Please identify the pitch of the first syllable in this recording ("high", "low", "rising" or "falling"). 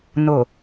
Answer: low